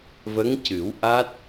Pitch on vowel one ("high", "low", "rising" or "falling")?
rising